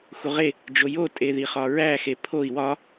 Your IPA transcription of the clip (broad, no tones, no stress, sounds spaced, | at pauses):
x u ʁ e | d͡ʒ o j o tʼ e ð i χ ɒ ɹ æ x e pʰ o i̯ w ɒ